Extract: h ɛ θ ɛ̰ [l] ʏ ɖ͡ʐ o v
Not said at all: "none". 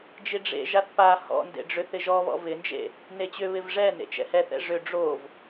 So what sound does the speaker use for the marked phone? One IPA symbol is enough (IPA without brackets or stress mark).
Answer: ʐ